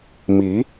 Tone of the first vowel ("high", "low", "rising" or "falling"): rising